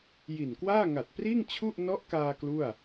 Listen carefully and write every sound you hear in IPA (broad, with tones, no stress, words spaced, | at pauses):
ji˨˩nkwaː˥˩ ŋa˨˩t̚priː˥˩ŋ t͡ɕʰu˥˩ʔ nɔ˦˥ʔkaː˧ klu˥˩a̯